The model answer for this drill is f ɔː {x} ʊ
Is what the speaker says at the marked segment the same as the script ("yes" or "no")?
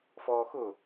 yes